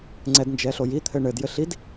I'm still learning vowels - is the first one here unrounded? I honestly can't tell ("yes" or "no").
yes